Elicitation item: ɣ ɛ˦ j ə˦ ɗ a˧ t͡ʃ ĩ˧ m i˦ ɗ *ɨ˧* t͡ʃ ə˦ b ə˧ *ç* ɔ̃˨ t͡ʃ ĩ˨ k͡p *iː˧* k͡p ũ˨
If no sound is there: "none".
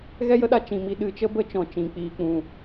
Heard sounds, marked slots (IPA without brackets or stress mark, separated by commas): ɨ˧, t͡ʃ, iː˧